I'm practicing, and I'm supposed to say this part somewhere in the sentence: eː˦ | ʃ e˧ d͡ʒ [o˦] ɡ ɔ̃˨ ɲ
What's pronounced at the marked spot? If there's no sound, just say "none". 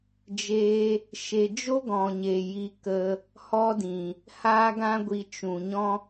o˦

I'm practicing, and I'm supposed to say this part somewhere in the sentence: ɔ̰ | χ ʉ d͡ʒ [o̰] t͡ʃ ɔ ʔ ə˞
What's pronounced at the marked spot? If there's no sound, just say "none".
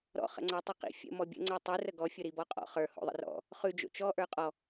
o̰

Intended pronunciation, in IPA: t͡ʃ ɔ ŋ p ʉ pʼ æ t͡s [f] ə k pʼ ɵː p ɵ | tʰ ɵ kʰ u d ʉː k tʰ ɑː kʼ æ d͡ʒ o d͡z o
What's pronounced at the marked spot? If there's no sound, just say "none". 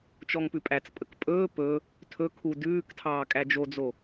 pʼ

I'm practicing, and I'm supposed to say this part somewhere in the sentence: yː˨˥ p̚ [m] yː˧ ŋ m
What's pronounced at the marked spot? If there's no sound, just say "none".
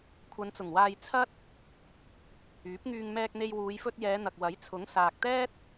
ŋ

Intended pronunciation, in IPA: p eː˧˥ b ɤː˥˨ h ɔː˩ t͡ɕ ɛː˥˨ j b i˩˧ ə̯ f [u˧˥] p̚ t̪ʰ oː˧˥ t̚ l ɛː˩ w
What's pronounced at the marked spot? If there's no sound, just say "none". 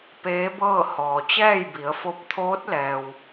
o˧˥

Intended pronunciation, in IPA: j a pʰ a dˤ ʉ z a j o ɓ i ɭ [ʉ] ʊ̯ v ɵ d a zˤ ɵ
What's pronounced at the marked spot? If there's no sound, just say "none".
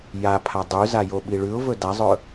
ʉ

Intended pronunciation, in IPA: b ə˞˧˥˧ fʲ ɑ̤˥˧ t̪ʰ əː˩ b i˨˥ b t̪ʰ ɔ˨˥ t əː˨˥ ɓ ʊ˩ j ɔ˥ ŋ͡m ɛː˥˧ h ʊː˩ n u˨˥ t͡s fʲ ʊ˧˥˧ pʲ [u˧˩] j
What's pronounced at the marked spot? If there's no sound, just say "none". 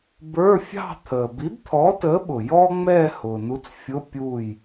u˧˩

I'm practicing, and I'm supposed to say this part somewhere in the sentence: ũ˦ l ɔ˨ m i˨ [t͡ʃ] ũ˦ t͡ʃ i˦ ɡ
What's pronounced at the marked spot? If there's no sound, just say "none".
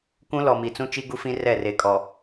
t͡s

